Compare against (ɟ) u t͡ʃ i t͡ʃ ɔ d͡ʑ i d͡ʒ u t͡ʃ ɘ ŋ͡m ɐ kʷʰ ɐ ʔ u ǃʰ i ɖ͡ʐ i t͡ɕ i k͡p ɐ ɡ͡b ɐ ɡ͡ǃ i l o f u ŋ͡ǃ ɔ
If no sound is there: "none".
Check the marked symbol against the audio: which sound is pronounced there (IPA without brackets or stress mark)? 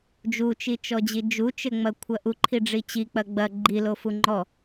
d͡ʒ